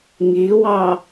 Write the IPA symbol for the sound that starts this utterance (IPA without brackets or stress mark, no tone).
ŋ